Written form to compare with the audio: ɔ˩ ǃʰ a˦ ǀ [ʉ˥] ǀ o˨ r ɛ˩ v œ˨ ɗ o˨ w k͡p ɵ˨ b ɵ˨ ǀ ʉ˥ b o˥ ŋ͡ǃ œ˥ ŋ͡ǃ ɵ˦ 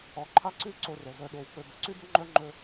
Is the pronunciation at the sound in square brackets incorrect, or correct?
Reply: incorrect